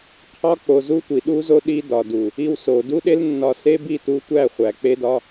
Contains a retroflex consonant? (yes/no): no